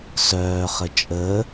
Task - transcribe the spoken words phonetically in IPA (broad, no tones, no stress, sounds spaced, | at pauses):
s œː χ ə t͡ʃʼ əː